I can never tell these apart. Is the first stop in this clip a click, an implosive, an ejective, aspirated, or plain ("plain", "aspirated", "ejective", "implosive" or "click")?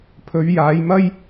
aspirated